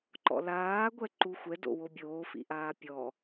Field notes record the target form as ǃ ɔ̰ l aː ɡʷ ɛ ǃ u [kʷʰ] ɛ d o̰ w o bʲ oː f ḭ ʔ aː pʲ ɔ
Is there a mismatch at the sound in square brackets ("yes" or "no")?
yes